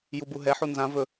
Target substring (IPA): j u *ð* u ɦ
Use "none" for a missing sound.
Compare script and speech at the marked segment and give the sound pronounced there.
b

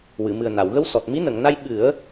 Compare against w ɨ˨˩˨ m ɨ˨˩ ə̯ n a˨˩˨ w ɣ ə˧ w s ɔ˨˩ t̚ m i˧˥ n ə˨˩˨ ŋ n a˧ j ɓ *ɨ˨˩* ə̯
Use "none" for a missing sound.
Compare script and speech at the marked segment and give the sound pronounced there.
ɨ˨˩˦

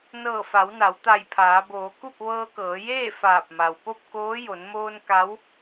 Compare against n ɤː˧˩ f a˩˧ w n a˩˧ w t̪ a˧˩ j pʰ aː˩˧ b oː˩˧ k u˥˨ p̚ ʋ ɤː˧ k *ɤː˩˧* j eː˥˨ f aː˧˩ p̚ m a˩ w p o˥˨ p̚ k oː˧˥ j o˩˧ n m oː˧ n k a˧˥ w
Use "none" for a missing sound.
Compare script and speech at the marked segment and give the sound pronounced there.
ɤː˩˧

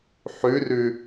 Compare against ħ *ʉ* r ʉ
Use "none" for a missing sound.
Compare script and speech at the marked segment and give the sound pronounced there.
ʉ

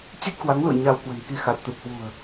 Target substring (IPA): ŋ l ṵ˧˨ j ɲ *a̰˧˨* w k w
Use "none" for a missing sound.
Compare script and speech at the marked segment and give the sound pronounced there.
a˧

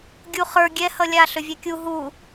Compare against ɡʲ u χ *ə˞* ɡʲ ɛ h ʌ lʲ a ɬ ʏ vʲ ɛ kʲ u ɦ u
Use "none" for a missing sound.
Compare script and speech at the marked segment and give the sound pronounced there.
ə˞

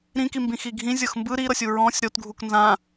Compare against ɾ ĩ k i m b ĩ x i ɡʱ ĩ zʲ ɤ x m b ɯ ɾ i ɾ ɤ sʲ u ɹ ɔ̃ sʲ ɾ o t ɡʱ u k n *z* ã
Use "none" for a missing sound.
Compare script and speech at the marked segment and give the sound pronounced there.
z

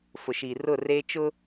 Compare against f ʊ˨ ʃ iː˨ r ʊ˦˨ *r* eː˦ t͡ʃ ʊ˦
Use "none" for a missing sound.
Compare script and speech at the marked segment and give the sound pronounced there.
r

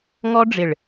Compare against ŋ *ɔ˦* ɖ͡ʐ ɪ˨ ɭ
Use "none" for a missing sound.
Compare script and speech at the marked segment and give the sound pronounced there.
ɔ˦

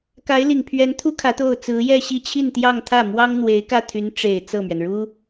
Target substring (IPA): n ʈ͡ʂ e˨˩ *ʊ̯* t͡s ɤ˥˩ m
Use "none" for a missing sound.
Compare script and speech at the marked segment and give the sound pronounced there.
ɪ̯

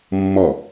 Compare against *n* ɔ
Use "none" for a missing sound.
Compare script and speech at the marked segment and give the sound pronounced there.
mː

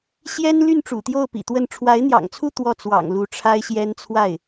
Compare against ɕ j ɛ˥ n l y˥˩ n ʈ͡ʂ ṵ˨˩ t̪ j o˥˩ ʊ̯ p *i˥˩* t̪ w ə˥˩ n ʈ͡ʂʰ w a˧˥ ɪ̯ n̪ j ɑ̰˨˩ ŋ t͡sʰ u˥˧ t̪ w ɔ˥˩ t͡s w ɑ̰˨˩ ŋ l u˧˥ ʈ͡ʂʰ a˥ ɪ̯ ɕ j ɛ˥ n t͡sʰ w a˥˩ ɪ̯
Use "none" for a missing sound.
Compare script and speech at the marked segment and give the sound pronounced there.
ḭ˨˩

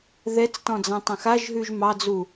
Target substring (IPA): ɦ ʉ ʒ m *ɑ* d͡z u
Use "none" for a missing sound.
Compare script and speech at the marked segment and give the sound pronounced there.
ɑ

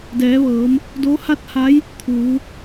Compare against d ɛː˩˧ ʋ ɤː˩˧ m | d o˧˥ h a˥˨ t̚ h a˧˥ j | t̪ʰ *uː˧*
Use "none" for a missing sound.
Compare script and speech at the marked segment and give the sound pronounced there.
uː˩˧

